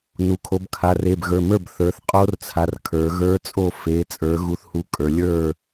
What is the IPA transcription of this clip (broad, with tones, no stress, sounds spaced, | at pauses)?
n u˩˧ kʰ o˩˧ b kʰ a˩˧˩ r e˩˧˩ b ɣ ə˞˩˧˩ m ə˞˥˩ b θ ə˞˩˧ θ qʼ o˧˥ r t͡sʰ a˩˧˩ r kʰ ə˞˩˧ ɣ ə˞˧˥ t͡sʼ o˥˩ f e˩˧ t͡sʼ ə˞˩˧ ɣ u˧˥ θ h u˧˥ kʼ ə˞˩˧ lʲ ə˞˥˩